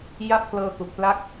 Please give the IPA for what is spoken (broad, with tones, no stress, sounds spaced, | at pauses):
j a˦˥ p̚ k l ɤː˧ k u˨˩ k̚ p l a˦˥ k̚